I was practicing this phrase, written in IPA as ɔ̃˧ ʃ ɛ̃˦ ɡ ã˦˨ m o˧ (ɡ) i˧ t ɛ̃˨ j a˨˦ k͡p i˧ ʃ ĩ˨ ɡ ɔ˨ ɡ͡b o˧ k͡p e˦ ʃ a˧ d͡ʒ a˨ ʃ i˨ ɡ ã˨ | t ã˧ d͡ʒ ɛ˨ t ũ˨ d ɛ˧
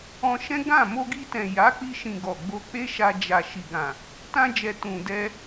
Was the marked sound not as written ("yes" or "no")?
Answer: no